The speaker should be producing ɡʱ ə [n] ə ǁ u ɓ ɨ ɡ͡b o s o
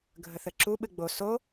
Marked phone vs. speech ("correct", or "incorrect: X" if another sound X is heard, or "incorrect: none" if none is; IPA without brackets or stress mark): incorrect: θ